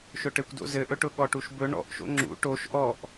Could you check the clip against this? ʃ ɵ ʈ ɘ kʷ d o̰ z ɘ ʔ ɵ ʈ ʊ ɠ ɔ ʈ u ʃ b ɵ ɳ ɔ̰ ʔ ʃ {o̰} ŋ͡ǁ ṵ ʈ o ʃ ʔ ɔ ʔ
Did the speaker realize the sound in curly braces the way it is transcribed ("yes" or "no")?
yes